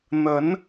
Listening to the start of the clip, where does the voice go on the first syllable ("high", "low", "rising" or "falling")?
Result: rising